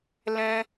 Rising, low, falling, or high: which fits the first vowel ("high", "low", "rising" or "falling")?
high